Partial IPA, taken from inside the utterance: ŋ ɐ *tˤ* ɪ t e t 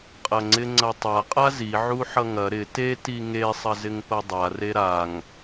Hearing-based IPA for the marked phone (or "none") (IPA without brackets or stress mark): ɾ